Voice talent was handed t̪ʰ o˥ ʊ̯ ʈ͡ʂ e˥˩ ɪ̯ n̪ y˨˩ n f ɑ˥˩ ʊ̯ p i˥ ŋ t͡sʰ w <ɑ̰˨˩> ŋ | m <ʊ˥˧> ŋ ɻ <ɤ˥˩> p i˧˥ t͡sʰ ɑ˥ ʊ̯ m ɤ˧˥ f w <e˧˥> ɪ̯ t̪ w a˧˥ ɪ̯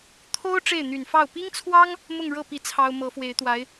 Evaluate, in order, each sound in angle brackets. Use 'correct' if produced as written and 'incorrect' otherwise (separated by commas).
incorrect, correct, correct, correct